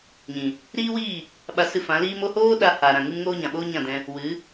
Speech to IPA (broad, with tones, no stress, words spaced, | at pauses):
ɲĩ˨ | ɾiː˦wiː˦˨ | ɓa˧sɨ˧fã˨˦ liː˧mo˧hoː˦ ɗa˧ ha˨ɾã˨ŋɨ˦mŋoː˦ ɲã˨ɓoː˦ ɲã˦˨dɛ̃˧ | wɨ˨˦